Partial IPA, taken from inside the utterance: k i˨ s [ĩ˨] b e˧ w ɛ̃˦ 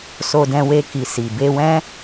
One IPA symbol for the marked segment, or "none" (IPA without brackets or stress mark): i˨